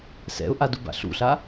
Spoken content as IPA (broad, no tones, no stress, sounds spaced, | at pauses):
s ɛ̰ ʊ̯ ʔ a d u b a̰ ɬ ṵ ɬ a